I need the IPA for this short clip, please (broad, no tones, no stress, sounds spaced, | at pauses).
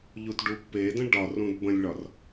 ʎ u t ɖ u pː e d ə̃ ɖ ɒ r ũ d b ə̃ lʲ ɭ ɒ r